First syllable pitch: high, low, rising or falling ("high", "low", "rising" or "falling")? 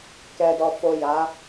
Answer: low